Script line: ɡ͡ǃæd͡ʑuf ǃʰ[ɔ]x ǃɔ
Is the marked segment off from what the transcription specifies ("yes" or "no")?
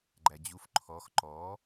no